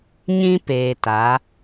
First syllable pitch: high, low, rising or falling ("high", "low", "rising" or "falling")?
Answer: high